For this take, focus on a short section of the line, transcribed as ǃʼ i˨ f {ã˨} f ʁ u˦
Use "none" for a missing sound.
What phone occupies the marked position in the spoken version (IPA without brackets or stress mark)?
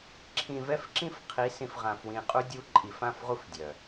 ã˦˨